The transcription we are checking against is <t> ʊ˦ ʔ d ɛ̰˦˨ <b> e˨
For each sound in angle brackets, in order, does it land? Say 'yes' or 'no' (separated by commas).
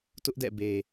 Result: yes, yes